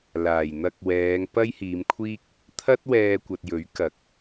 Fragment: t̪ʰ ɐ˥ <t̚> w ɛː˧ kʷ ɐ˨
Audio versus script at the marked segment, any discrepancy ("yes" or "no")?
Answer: no